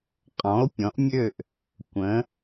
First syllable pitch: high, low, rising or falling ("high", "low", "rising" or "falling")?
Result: rising